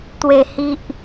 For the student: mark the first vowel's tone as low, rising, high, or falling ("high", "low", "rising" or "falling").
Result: low